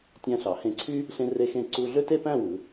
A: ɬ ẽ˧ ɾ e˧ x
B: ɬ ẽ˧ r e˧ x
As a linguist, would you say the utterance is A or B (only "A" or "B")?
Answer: B